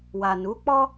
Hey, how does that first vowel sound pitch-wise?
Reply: low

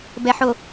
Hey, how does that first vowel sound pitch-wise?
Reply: low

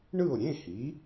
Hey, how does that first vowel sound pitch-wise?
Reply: falling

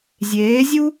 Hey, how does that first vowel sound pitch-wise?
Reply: rising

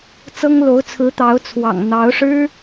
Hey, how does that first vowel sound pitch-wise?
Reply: high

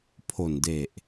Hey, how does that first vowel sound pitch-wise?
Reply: low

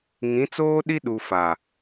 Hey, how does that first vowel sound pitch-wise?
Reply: rising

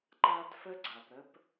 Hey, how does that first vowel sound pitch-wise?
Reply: high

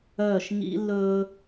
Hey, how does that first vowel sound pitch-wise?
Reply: falling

